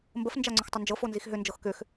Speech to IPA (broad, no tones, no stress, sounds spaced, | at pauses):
m b ə f n d͡ʒ a ŋ͡ǀ ʏ x tˤ ʏ n d͡ʒ ɤ f o n z i x ɦ ʏ n d͡ʒ ɤ x k ʏ x